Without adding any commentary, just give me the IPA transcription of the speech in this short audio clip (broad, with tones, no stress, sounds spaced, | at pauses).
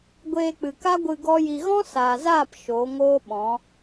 ɡʷ eː˧ k͡p ɨ˨ k a˦ ɡʷ ɨ˧ ɡ ɔ˦ j i˧ ɣ ɔ̃˦ s aː˨ z aː˦˨ p ʃ o˨˦ ŋ oː˦ ɓ ɔ̃˨˦